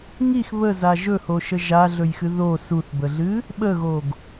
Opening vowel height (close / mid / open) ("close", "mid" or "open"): close